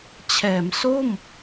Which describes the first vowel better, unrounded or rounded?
unrounded